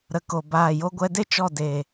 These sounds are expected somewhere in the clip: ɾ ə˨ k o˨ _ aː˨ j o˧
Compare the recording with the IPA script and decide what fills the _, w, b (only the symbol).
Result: b